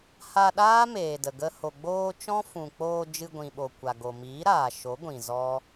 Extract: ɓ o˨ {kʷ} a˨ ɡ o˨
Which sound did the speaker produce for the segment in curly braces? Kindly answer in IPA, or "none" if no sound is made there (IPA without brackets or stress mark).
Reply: kʷ